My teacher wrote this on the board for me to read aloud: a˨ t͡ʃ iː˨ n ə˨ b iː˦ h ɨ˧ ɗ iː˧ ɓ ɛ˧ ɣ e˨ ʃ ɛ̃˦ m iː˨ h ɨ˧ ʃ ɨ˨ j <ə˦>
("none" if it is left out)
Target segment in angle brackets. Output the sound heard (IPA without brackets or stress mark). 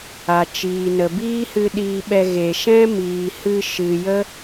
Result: ə˦